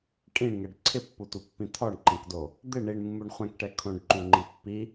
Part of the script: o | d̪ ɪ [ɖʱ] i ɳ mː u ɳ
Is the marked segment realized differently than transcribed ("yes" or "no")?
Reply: yes